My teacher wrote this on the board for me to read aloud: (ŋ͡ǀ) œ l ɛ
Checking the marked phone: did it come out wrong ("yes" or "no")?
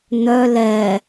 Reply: yes